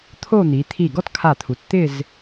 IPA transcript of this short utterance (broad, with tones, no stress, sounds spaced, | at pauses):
t̪ʰ o˥˧ n̪ i˩˧ t̪ʰ i˧˩ ɡ ɔ˥ t kʰ a˧˩ t̪ʰ u˩˧ t t̪ ɪ˥˧ z